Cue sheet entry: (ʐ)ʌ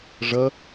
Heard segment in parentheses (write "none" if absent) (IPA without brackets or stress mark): ʐ